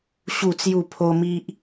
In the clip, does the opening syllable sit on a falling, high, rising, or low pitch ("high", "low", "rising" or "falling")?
falling